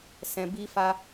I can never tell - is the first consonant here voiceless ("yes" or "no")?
yes